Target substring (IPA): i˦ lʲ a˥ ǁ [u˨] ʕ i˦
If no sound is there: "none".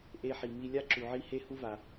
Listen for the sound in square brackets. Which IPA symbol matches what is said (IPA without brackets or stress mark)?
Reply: u˨